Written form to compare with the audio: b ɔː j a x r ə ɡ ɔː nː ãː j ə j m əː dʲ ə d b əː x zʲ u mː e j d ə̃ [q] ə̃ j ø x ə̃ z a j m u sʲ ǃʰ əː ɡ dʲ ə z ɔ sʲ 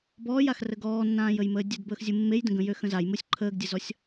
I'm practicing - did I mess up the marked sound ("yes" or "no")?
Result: yes